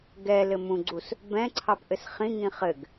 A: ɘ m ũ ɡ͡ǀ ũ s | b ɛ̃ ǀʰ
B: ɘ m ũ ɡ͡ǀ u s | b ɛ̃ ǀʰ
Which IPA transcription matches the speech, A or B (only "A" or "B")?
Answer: B